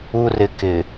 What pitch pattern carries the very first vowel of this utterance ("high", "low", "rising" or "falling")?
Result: low